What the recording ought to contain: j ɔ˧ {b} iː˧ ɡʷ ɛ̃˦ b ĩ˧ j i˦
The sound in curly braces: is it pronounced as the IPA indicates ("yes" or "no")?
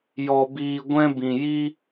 yes